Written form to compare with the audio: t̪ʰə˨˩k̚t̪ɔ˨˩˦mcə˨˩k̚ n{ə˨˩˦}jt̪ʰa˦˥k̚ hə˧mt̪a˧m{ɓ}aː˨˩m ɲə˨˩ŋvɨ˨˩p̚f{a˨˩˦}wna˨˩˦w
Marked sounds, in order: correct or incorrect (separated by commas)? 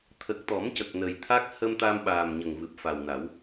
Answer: incorrect, correct, incorrect